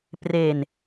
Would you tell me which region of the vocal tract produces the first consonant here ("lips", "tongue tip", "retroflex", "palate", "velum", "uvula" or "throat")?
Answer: lips